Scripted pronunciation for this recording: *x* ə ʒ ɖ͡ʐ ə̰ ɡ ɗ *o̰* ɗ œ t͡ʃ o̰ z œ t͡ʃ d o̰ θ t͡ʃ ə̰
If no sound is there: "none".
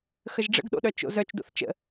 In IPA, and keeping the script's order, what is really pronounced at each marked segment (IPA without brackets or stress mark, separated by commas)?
x, o̰